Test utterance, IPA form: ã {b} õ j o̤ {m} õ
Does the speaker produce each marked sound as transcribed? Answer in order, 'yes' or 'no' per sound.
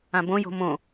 yes, yes

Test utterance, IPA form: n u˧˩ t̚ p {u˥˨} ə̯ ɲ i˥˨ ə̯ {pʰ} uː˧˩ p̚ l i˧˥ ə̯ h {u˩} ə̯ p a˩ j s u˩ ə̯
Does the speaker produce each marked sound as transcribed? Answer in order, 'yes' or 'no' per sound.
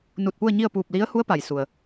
yes, no, no

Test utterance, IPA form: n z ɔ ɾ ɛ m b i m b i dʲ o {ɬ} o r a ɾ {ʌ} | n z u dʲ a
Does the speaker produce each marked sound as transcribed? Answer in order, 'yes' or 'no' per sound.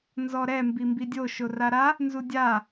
no, no

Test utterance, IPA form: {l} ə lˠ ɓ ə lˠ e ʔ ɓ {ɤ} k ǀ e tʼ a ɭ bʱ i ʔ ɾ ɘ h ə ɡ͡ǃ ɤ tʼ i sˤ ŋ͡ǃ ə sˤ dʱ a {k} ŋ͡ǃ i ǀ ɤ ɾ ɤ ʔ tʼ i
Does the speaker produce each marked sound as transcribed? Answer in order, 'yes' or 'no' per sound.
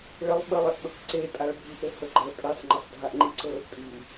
no, yes, no

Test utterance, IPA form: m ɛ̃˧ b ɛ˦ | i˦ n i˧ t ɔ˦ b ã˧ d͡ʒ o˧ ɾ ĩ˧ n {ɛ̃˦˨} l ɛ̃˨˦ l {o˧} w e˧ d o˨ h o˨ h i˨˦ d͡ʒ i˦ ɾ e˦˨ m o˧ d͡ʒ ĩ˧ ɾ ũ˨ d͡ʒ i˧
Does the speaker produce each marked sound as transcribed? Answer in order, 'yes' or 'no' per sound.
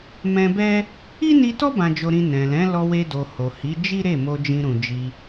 no, no

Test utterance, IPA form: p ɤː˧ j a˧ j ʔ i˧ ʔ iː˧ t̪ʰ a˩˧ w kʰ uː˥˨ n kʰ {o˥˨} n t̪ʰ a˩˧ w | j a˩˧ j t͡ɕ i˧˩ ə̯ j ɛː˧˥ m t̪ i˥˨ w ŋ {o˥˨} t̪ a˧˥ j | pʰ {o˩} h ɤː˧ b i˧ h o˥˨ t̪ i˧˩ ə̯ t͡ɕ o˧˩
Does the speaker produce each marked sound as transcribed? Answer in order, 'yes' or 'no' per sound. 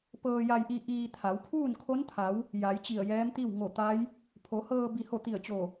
no, no, no

